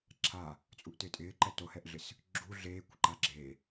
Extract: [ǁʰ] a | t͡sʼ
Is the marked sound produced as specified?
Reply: yes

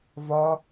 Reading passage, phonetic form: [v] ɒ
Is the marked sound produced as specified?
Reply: yes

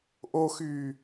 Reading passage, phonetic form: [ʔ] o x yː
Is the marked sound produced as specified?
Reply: yes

